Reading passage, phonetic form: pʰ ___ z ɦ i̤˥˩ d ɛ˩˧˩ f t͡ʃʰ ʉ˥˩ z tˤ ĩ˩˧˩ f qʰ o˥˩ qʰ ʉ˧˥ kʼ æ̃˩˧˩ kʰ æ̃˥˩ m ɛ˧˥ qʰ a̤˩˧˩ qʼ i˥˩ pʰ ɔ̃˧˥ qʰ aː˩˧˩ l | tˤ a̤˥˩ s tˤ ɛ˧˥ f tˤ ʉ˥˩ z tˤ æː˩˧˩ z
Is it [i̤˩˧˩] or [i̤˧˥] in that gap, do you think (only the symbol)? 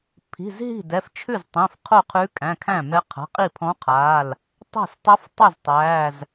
i̤˩˧˩